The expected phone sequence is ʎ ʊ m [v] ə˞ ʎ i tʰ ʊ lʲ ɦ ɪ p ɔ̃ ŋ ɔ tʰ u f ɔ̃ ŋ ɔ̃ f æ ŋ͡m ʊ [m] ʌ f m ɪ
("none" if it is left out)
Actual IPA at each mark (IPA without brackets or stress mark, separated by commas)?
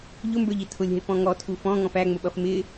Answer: b, ɓ